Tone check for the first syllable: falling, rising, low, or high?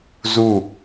falling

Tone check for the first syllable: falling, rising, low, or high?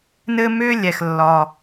high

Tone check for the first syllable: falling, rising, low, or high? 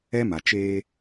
high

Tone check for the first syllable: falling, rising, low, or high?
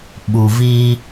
low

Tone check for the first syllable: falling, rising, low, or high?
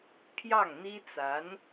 falling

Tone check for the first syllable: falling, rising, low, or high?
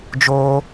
high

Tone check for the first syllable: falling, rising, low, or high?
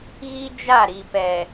high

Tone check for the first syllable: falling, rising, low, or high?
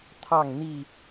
falling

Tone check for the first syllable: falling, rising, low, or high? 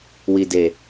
low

